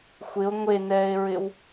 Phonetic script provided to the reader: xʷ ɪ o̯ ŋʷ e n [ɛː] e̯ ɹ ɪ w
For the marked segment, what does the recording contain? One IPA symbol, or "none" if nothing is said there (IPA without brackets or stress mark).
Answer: ɛː